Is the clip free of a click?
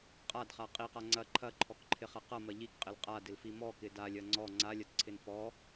no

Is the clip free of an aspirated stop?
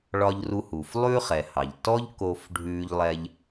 yes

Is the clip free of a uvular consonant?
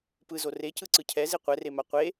no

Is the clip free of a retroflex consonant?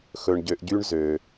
no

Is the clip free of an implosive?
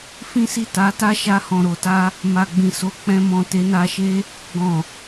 yes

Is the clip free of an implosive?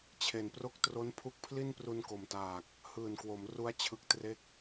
yes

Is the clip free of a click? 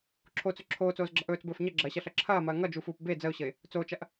no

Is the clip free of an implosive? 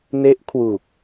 yes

